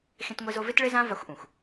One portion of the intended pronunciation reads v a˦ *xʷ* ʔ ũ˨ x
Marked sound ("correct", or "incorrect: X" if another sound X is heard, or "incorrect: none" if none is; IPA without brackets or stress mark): correct